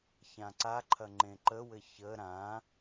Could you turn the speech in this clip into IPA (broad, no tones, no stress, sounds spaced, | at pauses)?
ç ã ǀ a ǃʰ ɐ ŋ͡ǃ ẽ ǃ ə w ɘ ç ə ɾ ã